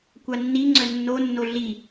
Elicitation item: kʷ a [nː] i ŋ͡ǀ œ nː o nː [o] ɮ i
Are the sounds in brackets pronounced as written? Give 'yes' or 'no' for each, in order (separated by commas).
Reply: yes, yes